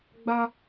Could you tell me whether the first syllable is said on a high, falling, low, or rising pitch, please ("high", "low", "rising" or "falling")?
high